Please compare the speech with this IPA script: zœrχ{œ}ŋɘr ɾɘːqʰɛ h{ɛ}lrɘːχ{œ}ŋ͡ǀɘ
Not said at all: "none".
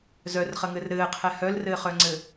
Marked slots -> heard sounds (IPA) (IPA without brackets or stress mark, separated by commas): ə, œ, œ